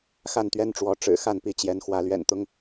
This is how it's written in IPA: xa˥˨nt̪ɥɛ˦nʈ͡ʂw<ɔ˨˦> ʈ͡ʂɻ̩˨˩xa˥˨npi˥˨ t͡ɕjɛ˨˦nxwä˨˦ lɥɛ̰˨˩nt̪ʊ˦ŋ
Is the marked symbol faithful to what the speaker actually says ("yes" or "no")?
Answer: yes